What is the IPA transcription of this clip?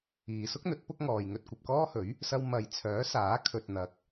iː˨ s ʊ˥ k̚ n̪ ɵ˨˥ t̚ p ʊ˥ k̚ ŋ ɔː˨ j ŋ ɵ˧ t̚ kʷ ɐ˨ p̚ k ɔː˥ h ɵ˨˥ ɥ | s ɐ˧ w m ɐ˨ j t͡sʰ œː˨˥ s aː˨˥ kʰ ɵ˨ t̚ n̪ ɐ˨˥ k̚

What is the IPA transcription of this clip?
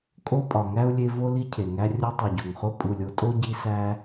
kʼ o˥ pʼ ɒ˨ ŋ æ˥ u̯ lʲ e˦ v o˥ l i˥ cʰ e˩ ŋ æ˦ rʲ o˦ tˤ u˩ ɟ o˩ ŋ χ o˦ pʼ u˨ lʲ o˦ tʼ o˥ ɟ i˦ s æ˦

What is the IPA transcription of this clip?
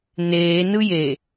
n eː n ɯ j e

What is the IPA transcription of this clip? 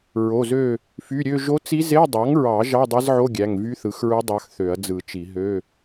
ɹ o˩˧˩ z ø˦˨ | f y˩˧˩ ɾʲ ø˦˨ ʒ o˧˥ t͡s i˧˥ z e˧˥˧ dˤ ɑ˩˥ ŋ ɹ ɑ˨˩˦ ʒ ɑ˧˥˧ dˤ i˧˥ z ʕ o˧˥˧ ɡʲ æ˩˧˩ ŋ v y˧˥ θ ɯ˩˥ x ɹ u˧˥ dˤ ɑ˧˥ x θ ø˨˩˦ ɐ̯ d͡z ɯ˨˩˦ t͡ʃ i˨˩˦ ɦ ø˧˥˧

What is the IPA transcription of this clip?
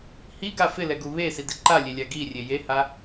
h i ɡ a f ɪ l ɛ ɡ u β e s i d ɪ ǃ a lʲ e lʲ a ɡ i rʲ e j e h a

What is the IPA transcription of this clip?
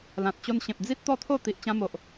l ã˨ t̚ t͡ɕ o˧ n ɕ ẽ˨ p̚ d͡z i˦ t̚ t̪ ɔ˥˧ t̪ʰ o˥˧ t̪ i˨ ʔ t͡ɕ ã˧ m o˨ ʔ

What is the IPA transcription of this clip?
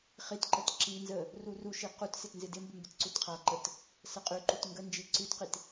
χ i t ǃ ə t ǁ i n z ə | r u r u ʃ i q u t s ɪ t n z ɪ d ɪ m b ə m b ɪ t ǀ u t qʰ a ǃ ə t | s ə qʼ ʉ ǃ u t ŋ ɡ ə n d͡ʒ i ǀ ʉ t q i t

